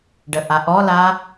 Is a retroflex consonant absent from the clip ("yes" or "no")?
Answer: no